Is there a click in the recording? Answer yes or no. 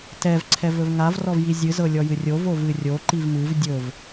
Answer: yes